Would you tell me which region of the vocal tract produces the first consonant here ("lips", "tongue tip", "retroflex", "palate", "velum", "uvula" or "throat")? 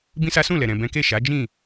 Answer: lips